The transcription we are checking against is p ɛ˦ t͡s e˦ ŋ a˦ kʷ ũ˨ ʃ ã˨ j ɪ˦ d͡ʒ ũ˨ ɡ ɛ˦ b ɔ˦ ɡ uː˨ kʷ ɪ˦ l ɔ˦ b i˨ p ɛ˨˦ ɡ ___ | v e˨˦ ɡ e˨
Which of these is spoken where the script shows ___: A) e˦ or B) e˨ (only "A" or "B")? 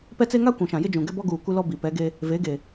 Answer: A